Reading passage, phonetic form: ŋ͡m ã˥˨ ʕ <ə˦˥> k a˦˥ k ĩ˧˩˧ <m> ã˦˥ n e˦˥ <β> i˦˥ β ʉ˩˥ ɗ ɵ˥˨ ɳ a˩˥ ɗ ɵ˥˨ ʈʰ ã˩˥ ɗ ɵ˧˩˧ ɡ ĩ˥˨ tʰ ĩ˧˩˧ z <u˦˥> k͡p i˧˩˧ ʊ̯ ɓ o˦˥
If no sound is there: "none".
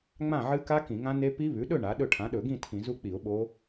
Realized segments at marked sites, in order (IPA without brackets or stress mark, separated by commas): ɨ˦˥, ŋ, p, u˦˥